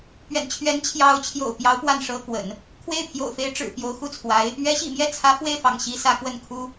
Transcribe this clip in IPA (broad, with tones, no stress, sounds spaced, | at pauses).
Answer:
p ɥ ɛ̰˨˩ n t͡ɕʰ ɥ ɛ˧˥ n t͡ɕʰ j ɑ˧˥ ʊ̯ t͡ɕʰ j o̰˨˩ ʊ̯ p j ɑ˧˥ ʊ̯ p w a˥˩ n ʂ ɤ˥ k w ə̰˨˩˦ n | kʰ w e˥˩ ɪ̯ pʰ j o̰˨˩ ʊ̯ f e˧˥ ɪ̯ ʈ͡ʂ ɻ̩˨˩ p j o˧˥ ʊ̯ x u˥˩ t͡sʰ w a˧˥ ɪ̯ | ɥ ɛ˧˥ ɕ ḭ˨˩ m j ɛ˥˩ t͡sʰ ä˧˥ f w e˥˩ ɪ̯ f ɑ̰˨˩ ŋ ɕ i˧˥ s ä˧˥ k w ə˥˩ n kʰ u˥